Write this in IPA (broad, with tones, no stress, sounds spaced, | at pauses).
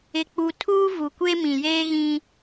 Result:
ɪ˨ k͡p u˨ tʰ uː˦ v u˨ kʷ e˦ m ĩ˨ j eː˦ ɣ ĩ˦